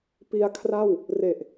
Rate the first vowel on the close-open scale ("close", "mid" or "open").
close